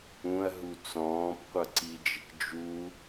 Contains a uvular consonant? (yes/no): yes